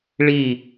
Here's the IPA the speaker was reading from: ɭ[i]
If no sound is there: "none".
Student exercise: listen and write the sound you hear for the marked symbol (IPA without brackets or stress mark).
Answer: i